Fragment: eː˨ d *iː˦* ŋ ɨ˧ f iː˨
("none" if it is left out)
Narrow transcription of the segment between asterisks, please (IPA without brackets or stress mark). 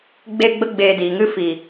iː˨